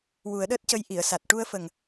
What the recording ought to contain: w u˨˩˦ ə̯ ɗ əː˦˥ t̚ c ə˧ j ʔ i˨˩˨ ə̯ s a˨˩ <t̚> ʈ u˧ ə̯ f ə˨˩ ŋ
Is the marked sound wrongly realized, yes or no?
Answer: no